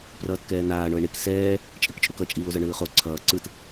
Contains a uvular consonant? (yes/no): yes